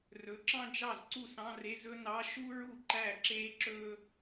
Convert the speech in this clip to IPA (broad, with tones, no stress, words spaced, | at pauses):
rɵ˩˥ǁɑ̃˥ d͡ʒɑ˥˩zǀu˥˩sɑ̃˧˥˧re˧˥˧z ɵ˥nɑ˧˥˧ ʃu˥ ɹu˥˩ǃæ˥˩ǁeː˥ǁɵː˥